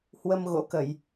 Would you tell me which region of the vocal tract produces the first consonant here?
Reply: throat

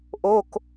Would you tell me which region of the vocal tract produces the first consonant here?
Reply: throat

